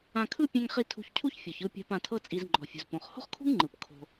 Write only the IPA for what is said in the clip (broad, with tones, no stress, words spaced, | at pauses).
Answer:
ã˧kʰɯ˥ pʲɛ̃˧ŋχi˧ tʰṳ˧çcʰu˥ç fʲɔ˩çɯ˧pʲa̤˧p ã˧tʰɤ˥t͡sʼi˧z ŋ͡ǃɔ̤˩fʲṳ˩zpõ˩χ ho̤˥χkʰṳ˥ŋŋ͡ǃɯ˩p kʰo̤˧